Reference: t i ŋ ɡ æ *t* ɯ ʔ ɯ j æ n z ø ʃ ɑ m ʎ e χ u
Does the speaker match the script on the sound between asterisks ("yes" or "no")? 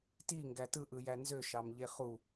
yes